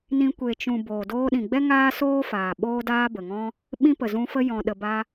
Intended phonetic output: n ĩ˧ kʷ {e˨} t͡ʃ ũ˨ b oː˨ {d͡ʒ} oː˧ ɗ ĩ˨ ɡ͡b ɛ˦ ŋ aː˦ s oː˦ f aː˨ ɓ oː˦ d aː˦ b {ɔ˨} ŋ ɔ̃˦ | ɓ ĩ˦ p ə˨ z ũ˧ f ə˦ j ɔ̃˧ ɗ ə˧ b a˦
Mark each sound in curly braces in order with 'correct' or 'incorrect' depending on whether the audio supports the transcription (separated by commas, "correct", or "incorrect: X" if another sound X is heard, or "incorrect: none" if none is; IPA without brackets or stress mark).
correct, incorrect: d, incorrect: ə˨